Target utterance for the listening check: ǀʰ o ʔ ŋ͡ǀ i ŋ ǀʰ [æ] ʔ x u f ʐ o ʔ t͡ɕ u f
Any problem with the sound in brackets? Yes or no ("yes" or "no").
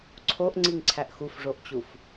no